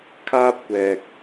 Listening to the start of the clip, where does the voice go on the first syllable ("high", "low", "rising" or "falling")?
high